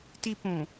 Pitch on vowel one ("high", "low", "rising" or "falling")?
high